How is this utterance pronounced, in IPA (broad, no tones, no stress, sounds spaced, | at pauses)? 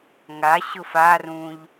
ŋ a ɕ ʊ f a r ũ ʎ